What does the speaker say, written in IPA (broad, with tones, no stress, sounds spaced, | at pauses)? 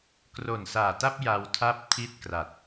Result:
k r o˨˩ n s aː˨˩ t a˥˩ p̚ j a˧ w tʰ a˥˩ p̚ tʰ i˥˩ t̚ k r a˨˩ t̚